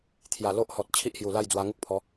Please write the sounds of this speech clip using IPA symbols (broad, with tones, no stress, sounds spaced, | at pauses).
t̪ʰ j a˨˩ l o˦ ʔ h ɔ˨ t̚ t͡ɕʰ i˦ ʔ h j u˨˩ l a˥˧ j d͡z w a˧ ŋ u˦ k̚ pʰ ɔ˨˦